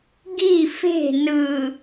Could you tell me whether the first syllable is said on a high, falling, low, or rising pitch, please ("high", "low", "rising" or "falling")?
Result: falling